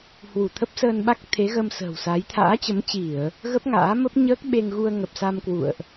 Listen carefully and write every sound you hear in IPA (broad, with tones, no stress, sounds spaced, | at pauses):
h w u˧˩ t̪ʰ ə˦˥ p̚ s əː˧ n ɓ a˦˥ k̚ t̪ʰ e˨˦ ɣ ə˧ m s ə̤ː˨˩ w s a˨˦ j t̪ʰ a̰ː˧˥ t͡ɕ ə˨˦ m t͡ɕ i˧˩˨ ə̯ | ɣ ə˦˥ p̚ ŋ a̰ː˧˥ m ə˦˥ p̚ ɲ əː˦˥ k̚ ɓ e˧ ŋ ɣ u˧ ə̯ ŋ ə˨˩ p̚ s a˧ m k w ṵ˧˨ ə̯ ʔ